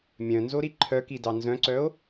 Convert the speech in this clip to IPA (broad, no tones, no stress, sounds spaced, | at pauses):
mʲ œ̃ n z o ɾ i ǃʰ œ k i d ɑ n z œ̃ ǀ œ o̯